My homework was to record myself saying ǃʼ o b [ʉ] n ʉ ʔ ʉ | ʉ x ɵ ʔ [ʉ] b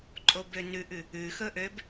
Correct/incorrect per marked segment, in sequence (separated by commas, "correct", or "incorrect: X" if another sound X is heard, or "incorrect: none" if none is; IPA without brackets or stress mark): incorrect: ø, incorrect: ø